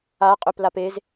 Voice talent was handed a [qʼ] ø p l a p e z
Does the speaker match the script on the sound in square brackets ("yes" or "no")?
yes